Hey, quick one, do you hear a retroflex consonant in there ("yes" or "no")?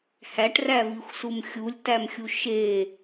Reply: yes